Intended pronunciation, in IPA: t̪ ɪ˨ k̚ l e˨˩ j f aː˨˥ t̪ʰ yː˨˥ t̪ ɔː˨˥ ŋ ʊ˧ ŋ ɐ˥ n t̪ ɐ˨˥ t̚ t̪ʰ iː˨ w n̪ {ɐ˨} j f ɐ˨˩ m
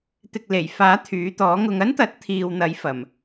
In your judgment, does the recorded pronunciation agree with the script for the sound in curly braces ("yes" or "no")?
no